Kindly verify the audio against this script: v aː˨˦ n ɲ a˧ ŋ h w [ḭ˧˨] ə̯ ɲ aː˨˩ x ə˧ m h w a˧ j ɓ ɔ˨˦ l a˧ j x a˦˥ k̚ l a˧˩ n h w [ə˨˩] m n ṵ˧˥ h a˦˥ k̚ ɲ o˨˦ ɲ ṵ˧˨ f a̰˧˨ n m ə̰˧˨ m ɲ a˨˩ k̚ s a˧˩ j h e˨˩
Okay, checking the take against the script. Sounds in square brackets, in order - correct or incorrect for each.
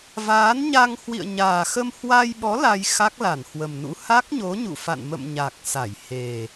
correct, correct

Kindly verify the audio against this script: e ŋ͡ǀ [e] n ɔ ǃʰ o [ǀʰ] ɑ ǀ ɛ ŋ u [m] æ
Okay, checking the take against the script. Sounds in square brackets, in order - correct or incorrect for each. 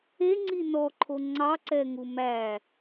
incorrect: i, incorrect: ŋ͡ǀ, correct

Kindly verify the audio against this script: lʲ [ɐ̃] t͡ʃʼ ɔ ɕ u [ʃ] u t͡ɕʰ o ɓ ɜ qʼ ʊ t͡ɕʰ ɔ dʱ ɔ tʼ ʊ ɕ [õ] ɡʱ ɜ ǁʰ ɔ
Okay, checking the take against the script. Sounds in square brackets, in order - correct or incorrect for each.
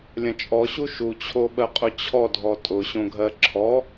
correct, correct, correct

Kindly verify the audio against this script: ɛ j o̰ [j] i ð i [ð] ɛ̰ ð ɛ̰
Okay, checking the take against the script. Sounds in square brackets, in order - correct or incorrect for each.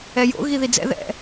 incorrect: ɣ, incorrect: d͡z

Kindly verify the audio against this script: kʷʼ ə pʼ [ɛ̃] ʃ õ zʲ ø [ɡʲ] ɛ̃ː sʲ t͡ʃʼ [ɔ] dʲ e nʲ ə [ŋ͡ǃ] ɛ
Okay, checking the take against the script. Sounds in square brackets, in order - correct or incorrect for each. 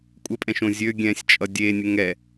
correct, correct, incorrect: ʌ, incorrect: ŋ

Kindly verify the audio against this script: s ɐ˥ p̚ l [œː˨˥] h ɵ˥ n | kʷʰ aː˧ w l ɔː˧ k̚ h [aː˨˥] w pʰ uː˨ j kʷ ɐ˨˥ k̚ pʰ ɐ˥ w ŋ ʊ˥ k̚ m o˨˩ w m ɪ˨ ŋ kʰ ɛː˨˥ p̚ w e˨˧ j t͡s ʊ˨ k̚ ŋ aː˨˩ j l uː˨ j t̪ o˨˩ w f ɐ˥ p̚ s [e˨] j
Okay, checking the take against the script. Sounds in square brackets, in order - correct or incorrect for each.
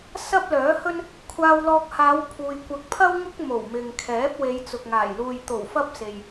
correct, incorrect: aː˨˧, correct

